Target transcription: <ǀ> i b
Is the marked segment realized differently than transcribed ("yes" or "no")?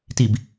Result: yes